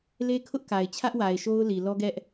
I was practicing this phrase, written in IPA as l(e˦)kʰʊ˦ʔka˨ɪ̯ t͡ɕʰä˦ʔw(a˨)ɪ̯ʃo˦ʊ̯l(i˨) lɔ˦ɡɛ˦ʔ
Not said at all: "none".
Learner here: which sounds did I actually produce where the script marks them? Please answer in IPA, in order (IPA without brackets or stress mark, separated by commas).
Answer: e˦, a˨, i˨